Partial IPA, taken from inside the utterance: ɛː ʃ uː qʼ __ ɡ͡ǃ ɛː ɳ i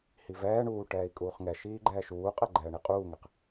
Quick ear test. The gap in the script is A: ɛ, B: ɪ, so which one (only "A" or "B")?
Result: A